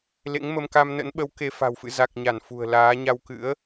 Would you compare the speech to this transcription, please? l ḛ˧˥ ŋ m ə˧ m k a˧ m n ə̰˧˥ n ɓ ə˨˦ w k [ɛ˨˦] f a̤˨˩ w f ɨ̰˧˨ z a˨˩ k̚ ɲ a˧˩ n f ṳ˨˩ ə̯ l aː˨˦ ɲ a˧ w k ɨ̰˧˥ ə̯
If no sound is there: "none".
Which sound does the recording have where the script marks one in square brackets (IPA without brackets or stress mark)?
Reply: e˨˦